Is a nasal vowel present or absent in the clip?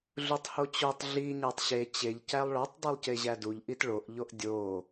absent